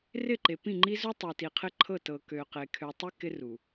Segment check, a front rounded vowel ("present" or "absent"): present